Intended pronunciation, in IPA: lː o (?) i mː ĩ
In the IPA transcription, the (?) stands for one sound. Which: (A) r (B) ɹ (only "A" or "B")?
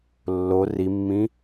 A